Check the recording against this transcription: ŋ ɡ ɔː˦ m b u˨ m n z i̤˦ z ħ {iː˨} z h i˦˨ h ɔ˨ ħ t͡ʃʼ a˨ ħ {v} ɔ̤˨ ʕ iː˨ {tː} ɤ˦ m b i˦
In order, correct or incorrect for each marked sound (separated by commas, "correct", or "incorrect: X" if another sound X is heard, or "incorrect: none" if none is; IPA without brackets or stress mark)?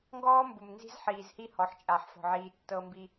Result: correct, incorrect: f, correct